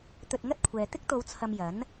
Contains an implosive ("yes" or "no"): no